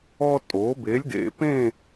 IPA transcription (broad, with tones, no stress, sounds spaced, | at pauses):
ɔ˥ tʼ o˩˥ b e˩˥ lʲ d ḛ˩ p ẽ˥˨